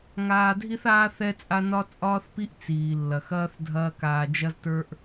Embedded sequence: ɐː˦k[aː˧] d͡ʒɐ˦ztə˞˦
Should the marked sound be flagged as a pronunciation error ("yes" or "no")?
no